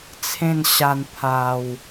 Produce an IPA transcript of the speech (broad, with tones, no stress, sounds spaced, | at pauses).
t͡sʰ ẽ˥˧ n ɕ a˧ n pʰ a˨˩ w